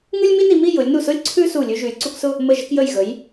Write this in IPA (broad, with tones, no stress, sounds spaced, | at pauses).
ŋ ʉ˥ lʲ m i˥ n i˧ m i˥˧ j ʊ˩˧ lʲ n u˧˩ s ʊ˥ lʲ ǀʰ ʉ˥ s u˧˩ lʲ ʉ˧ ʒ ʉ˩˧ lʲ ǀ u˧ k s ʊ˥˧ | m ə˧˩ ʒ ə˧ k j ə˧˩ j ɣ ə˩˧ j